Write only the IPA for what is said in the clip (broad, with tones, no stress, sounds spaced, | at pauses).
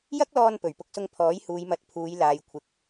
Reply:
j ɐ˥ k̚ l ɔː˧ n p ɵ˨˩ ɥ p ʊ˧ k̚ s ʊ˧ ŋ pʰ ɔː˨˥ j h uː˨˧ j m ɐ˨˥ t̚ pʰ uː˨˧ j l aː˨ j kʷʰ ɪ˨˥ k̚